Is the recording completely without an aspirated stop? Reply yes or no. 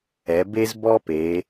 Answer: yes